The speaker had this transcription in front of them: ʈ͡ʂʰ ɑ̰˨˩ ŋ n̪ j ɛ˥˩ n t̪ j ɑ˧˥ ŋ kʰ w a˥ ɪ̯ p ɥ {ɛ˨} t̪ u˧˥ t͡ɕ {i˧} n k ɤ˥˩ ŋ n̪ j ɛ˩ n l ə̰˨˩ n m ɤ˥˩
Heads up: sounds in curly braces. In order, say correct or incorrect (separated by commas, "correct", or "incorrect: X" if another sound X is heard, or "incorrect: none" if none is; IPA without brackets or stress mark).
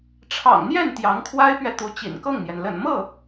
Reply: correct, incorrect: ḭ˨˩